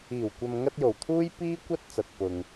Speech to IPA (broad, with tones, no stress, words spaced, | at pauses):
iː˨˩wkʷɐ˨mŋɐ˧t̚ jo˨˩wt̪ʰuː˥j piː˥kʷɐ˥t̚ t͡sɐ˨t̚pʊ˨ŋ